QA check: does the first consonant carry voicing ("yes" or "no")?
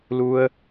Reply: yes